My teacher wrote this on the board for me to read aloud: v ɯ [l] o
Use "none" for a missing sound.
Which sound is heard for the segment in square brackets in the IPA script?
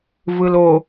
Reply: l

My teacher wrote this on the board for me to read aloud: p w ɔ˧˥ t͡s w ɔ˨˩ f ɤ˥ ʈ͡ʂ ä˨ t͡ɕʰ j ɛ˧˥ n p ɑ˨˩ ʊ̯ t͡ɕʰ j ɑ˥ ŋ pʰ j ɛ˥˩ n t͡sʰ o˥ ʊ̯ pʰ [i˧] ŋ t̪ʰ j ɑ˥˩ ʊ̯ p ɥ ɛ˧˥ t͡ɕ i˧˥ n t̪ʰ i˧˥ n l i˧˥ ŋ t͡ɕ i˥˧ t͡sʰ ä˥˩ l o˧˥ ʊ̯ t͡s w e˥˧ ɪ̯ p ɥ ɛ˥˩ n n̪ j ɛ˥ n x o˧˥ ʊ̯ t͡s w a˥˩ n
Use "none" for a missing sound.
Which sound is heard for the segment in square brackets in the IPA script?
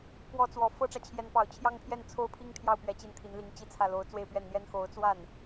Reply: i˥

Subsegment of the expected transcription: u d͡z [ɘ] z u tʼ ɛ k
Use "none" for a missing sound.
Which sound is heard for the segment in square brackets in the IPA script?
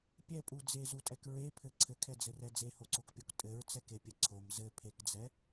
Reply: e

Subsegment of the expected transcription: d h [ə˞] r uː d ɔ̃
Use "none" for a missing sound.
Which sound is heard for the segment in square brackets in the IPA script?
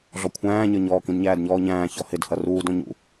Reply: ʌ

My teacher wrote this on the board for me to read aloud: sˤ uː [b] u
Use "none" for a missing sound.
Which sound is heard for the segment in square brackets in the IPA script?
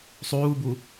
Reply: b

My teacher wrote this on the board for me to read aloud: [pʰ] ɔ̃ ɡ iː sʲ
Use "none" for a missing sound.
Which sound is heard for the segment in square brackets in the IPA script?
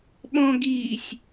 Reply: ɓ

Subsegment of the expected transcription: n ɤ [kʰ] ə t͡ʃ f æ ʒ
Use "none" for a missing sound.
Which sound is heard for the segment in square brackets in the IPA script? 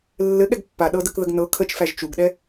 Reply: kʰ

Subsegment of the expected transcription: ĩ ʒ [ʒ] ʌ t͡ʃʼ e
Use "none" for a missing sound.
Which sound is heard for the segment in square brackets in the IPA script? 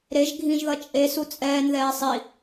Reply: ð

